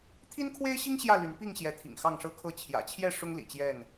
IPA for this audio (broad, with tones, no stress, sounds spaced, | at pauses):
t̪ʰ i˦ n kʰ w e˦ ɪ̯ ɕ i˦ ŋ ɕ j ä˥˨ l y˨˦ n p i˥˨ ŋ ɕ j ɛ˨˦ t̪ʰ ḭ˨˩ ŋ x ɑ˥˨ ŋ ʂ ɤ˦ kʰ ɤ˥˨ t͡ɕʰ j ä̰˨˩ t͡ɕʰ j ɛ˥˨ ʂ ʊ˦ ŋ l ḭ˨˩ t͡ɕ j ɛ˥˨ n